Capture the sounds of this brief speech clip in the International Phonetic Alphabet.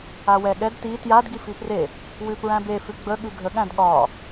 a w ɛ ɠ ɛ d t i t j a d ɡ i f i p r e | w ʉ p ɹ æ̃ b e f ʉ ɡ͡b ə ɠ ʉ ɡʱ ə ɠ æ̃ d ɠ ɒ

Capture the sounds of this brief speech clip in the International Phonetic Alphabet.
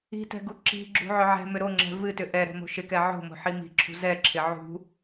i̤ t ɛ̤ ɡ u ǁ i̤ ɡ͡ǁ ṳ ʕ ʏ ʕ ɛ̤ m ʏ ɾ o ŋ͡ǁ ɛ̤ v ɨ t ʏ ʔ ɛ ɾ ɛ̤ m o̤ ʃ ɪ k ɛ ʕ o̤ m o̤ ħ i m i̤ ǁʰ ṳ z ɛ ǁʰ ɪ ʕ ṳ

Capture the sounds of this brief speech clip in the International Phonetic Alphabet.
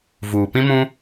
v uː˨ p ĩ˦ m ũ˦

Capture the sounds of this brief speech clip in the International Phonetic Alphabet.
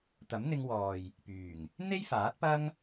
t̪ ɐ˨˥ m n̪ ɪ˧ ŋ w ɔː˨ j | p yː˨˩ ŋ | n̪ e˥ j f aː˨˥ t̚ p ɐ˥ ŋ

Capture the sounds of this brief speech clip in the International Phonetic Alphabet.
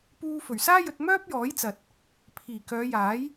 p uː˧ f ɵ˨˩ ɥ s aː˥ j ɵ˧ t̚ m œː˥ p̚ j ɔː˨˥ j t͡s ɐ˨ t̚ | pʰ iː˨˩ k œː˨˧ j aː˨˥ j

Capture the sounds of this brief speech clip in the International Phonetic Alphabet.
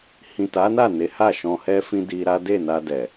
h ĩ˨ t a˨˦ n a˦˨ n e˨˦ h a˦˨ ʃ ɔ̃˧ h ɛ˦ f ĩ˦ d i˧ ɾ a˦ d e˦˨ n a˧ d ɛ˨

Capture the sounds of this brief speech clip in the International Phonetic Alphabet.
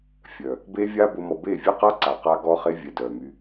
fʲ œ˨ | b e˦ vʲ a˦ b ʊ˧ m ɔ˨ b e˦˨ vʲ e˦ q a˦ ǀ a˨ q a˦ ɡ ɔ˦ χ e˦ vʲ ɛ˨ d œ˨ m y˧

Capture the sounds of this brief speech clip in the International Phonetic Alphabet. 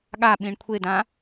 ɠ a ɓ ĩ ɳ kʷʰ e d ã

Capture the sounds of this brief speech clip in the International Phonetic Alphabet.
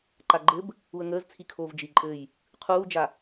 ǃ a ɡ͡ǃ ɘ b | u ə̯ ŋ əː z t͡sʰ i kʰ oː v d͡ʒ i ǃʼ ɘː j | qʰ uː d͡ʒ a

